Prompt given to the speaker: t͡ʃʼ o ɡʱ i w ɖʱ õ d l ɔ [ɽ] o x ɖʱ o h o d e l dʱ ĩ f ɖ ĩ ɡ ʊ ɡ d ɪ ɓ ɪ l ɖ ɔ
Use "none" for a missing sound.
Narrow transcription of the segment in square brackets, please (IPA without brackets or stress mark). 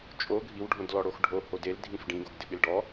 ɽ